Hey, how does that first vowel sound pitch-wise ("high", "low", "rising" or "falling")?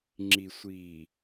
low